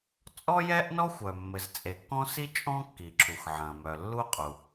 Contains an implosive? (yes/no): no